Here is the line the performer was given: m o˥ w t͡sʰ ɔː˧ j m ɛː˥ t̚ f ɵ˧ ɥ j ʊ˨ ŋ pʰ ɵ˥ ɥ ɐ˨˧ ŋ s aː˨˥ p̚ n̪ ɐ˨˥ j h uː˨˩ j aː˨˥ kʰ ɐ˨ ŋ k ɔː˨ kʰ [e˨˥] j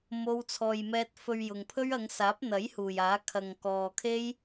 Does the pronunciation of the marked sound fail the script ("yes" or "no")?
yes